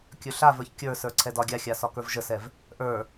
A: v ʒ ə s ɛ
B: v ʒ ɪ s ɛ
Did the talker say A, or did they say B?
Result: A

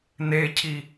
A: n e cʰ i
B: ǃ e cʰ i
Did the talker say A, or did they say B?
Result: A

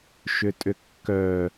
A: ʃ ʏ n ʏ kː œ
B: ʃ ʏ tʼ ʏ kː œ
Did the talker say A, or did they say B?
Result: B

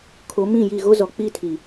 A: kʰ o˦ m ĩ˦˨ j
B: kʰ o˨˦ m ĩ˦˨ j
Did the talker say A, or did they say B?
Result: B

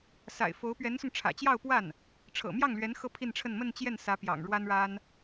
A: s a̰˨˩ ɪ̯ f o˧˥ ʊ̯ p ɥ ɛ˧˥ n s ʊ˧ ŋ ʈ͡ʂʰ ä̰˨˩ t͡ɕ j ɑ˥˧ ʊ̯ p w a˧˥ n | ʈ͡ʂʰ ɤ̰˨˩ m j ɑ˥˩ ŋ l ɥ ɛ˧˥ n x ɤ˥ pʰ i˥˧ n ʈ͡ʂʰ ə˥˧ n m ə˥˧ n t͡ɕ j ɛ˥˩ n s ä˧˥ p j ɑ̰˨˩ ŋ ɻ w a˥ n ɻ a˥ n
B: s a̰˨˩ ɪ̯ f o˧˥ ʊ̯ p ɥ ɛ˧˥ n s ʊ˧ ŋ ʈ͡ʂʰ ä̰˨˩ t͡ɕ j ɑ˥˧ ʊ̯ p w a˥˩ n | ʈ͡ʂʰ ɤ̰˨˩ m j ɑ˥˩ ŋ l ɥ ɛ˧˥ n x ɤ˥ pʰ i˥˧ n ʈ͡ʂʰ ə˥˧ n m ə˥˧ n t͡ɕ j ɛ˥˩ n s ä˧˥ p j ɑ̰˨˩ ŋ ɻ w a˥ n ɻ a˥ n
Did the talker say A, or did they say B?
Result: B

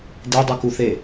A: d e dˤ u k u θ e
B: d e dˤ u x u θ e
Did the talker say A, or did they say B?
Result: A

